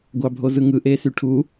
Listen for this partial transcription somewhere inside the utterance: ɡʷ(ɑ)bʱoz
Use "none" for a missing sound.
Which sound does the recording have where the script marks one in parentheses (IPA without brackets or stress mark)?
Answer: ɑ